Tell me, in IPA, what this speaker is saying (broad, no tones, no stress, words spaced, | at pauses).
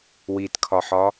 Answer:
witkʰɒħɒ